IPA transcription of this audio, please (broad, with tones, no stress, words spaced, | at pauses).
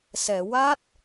sɛ˨˩˨wa˦˥t̚